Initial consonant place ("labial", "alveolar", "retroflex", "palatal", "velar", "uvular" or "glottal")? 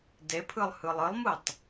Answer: alveolar